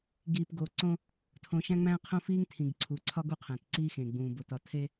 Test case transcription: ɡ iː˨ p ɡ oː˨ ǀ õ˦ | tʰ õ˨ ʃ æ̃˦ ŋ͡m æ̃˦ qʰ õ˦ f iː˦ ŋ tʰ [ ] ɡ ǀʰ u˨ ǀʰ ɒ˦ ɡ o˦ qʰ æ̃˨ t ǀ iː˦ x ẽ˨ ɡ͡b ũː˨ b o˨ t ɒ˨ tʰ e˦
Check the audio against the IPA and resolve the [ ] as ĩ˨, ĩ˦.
ĩ˨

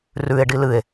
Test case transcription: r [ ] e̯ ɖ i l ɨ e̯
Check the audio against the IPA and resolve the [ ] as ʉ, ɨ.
ʉ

